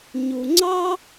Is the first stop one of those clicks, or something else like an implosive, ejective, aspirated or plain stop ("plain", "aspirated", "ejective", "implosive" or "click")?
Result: click